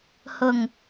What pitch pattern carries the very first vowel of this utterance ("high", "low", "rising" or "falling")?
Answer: low